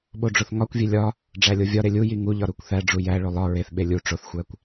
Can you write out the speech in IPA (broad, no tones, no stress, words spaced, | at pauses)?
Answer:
ɓoɖ͡ʐoθŋɒkʷvʲe lʲɒ | ɖ͡ʐælʲovʲɒɾe lʲuji ŋuʎɒ ɾukʷθæɖ͡ʐu jæɭolˠ ɒ ɹeθɓe lʲu ʈ͡ʂoθxʷækʷ